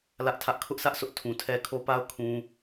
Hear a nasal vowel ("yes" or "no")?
yes